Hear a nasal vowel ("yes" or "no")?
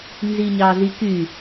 no